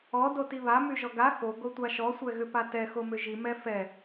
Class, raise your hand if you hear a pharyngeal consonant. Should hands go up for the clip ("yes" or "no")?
no